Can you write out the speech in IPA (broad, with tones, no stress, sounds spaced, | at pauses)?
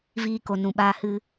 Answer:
v iː˧ k o˨ n ũ˨ ɓ aː˧ h ɨ˧